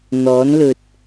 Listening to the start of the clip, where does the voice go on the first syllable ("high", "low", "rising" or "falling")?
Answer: rising